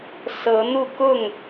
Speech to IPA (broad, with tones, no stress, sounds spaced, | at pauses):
s ɤ˨˦ n̪ u˥˨ k ʊ˥˨ ŋ